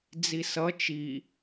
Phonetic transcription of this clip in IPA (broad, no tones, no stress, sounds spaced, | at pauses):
d͡z i s ʌ t͡ʃ i